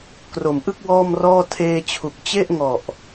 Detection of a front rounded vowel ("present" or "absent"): absent